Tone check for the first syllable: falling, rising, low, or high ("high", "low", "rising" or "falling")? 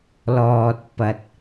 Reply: low